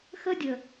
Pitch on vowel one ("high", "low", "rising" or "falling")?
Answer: high